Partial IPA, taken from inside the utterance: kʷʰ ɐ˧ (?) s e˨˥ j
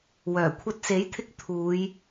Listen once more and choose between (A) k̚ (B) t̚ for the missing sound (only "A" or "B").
B